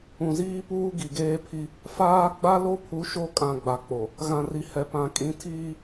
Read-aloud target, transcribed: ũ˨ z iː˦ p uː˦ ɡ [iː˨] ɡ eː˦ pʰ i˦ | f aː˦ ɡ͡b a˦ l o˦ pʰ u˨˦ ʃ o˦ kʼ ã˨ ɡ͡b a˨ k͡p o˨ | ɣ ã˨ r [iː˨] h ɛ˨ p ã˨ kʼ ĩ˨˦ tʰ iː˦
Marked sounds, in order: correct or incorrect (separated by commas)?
incorrect, incorrect